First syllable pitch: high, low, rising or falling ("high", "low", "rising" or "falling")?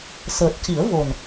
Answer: low